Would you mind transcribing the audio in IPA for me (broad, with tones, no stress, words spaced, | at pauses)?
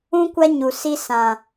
ũ˦kʷa˦ɲu˨ si˧sã˨